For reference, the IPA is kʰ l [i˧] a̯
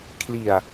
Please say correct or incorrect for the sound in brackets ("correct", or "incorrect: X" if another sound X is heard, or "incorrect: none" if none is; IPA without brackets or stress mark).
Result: incorrect: i˨˩